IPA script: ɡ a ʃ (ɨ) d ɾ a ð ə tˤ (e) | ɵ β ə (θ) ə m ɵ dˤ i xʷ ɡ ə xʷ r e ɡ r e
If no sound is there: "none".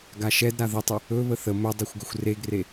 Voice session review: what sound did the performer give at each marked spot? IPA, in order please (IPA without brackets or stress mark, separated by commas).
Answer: ɛ, ɨ, θ